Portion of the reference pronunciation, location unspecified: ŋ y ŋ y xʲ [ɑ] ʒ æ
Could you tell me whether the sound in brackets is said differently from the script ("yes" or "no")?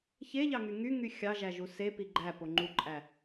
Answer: no